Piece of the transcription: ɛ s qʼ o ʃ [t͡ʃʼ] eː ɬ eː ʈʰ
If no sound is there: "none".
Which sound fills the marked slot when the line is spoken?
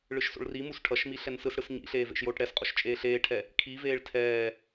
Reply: t͡ʃʼ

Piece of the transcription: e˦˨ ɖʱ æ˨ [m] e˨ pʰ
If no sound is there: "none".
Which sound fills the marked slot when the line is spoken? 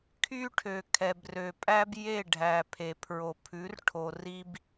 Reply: pʰ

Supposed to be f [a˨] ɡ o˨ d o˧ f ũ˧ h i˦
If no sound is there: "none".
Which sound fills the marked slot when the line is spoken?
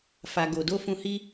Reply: a˨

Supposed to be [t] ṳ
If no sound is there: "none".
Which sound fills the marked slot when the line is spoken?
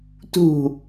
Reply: t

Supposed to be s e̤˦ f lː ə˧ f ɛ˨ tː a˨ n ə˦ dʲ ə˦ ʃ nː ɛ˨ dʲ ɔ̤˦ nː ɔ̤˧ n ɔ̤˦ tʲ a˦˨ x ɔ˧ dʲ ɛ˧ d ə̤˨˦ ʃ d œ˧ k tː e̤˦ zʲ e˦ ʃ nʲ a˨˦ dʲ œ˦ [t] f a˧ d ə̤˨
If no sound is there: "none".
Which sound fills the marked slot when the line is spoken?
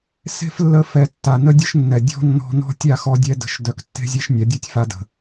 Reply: tʲ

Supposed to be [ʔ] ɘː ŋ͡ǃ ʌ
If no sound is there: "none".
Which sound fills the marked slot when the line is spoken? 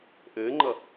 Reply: ʔ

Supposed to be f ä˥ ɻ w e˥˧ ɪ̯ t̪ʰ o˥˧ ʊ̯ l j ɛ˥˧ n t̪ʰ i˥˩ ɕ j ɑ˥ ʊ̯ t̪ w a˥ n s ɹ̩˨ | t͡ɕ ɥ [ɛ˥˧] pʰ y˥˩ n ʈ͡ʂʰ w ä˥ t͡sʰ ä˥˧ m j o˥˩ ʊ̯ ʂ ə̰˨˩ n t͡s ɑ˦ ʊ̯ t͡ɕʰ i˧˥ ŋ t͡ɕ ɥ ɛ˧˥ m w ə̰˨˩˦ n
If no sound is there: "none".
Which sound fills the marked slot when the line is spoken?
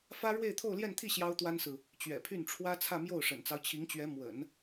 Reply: ɛ̰˨˩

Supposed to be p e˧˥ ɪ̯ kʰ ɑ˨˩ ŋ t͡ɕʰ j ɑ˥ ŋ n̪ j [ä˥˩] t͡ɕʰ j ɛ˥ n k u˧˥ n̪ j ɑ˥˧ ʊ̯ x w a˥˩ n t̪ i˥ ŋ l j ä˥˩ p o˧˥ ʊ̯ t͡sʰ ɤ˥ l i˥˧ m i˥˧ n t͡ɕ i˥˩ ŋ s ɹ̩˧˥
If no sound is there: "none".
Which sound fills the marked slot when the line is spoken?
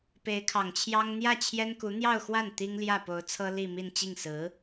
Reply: ä˥˩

